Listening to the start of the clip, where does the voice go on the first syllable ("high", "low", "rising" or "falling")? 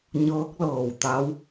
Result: rising